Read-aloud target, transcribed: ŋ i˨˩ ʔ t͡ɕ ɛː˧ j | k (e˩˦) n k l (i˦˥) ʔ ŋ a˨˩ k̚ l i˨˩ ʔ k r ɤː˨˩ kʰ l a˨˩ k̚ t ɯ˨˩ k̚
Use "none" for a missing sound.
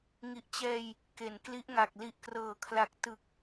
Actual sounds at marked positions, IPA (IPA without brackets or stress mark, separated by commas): e˩˦, i˦˥